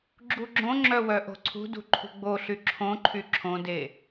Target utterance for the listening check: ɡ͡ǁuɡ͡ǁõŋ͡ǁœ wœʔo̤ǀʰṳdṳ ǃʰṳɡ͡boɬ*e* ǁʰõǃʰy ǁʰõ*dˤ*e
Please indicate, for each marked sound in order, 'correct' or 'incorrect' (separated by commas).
incorrect, incorrect